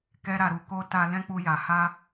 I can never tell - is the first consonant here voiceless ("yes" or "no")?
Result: yes